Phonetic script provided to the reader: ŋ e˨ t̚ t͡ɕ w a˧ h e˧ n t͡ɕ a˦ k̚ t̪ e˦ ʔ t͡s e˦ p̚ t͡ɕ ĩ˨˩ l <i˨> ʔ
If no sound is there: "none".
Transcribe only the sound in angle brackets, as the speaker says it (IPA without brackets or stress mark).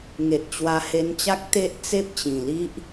i˦